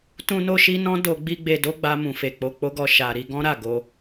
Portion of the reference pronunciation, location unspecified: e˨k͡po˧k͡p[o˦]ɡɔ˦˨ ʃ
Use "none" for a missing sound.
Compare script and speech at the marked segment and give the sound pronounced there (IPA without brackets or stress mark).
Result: o˦